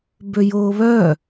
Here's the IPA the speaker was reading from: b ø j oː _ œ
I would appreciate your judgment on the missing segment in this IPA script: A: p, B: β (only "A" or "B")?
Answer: B